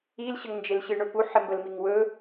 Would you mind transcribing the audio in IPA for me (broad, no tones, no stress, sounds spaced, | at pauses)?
i l ɕ ə ŋ n d͡ʒ e l ɕ ɨ ɳ ɵ p u ħ ɪ m b ə l m i ŋ w ɵ